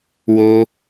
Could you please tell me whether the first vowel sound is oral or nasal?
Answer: oral